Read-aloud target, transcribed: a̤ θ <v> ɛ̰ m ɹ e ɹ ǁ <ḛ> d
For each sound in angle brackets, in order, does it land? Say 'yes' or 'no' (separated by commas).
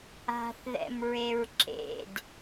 no, yes